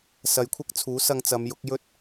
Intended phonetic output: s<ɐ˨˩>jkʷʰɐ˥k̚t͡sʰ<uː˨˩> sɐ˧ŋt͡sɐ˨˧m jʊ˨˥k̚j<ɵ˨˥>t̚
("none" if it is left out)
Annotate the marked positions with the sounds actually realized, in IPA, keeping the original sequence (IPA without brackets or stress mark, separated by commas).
ɐ˨˧, uː˨˥, ɵ˥